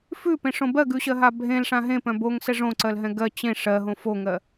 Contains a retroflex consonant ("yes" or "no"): yes